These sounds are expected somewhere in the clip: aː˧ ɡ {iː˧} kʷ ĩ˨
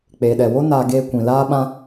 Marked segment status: incorrect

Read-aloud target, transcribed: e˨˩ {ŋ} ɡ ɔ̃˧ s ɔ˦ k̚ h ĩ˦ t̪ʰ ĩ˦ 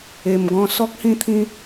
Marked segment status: incorrect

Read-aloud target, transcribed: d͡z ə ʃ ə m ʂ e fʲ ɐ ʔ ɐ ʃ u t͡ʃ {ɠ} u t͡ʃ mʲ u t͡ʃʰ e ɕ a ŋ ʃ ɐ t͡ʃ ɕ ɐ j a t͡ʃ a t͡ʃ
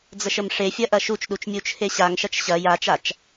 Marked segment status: incorrect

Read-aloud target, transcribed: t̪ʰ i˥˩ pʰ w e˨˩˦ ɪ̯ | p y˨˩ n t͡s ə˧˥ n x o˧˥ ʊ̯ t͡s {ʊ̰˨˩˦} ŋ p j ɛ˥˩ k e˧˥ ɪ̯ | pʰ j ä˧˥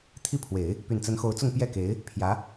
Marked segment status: incorrect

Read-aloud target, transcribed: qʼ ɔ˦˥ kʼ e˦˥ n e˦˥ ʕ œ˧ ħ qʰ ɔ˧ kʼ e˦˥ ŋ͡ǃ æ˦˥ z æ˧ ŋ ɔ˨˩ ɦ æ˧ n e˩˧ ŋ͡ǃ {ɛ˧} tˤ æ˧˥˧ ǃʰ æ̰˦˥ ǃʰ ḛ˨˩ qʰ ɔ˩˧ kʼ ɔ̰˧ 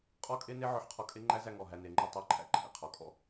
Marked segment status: correct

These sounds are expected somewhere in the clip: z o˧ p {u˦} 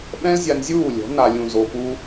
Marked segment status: correct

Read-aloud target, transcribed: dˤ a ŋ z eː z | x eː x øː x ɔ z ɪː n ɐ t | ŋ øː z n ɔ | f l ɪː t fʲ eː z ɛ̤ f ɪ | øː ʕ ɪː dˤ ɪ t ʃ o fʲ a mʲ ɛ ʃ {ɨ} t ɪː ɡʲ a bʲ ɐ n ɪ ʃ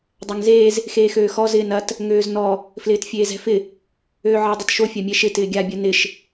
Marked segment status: incorrect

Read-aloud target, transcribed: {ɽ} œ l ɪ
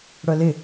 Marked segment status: correct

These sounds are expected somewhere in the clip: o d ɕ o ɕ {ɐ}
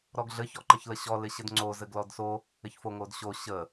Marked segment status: incorrect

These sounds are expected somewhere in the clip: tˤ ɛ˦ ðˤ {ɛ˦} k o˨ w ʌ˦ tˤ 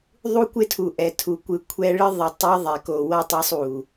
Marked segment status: incorrect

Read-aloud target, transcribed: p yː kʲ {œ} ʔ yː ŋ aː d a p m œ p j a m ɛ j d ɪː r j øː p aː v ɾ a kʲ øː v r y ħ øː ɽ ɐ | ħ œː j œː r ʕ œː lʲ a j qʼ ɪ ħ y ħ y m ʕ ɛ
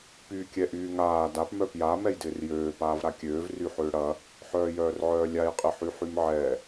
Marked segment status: incorrect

